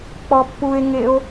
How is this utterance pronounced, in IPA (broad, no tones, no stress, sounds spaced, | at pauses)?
k͡p ɔ pː u e̯ ŋ e o̯